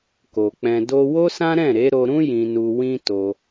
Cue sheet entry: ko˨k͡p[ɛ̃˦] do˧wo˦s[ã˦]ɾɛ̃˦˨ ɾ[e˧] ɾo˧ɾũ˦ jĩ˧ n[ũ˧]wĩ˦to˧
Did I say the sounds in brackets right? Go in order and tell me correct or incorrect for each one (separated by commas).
incorrect, correct, incorrect, incorrect